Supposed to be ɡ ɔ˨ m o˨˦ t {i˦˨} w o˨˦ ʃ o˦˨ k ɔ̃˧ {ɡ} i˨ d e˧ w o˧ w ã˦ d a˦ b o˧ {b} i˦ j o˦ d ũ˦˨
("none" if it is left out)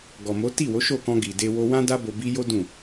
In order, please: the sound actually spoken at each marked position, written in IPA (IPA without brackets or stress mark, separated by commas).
i˦˨, ɡ, b